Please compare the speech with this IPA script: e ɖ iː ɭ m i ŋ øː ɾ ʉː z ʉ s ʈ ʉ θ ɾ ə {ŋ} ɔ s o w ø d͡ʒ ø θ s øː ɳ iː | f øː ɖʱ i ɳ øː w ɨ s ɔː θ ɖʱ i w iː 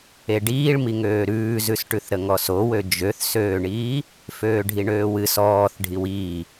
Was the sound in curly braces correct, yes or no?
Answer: yes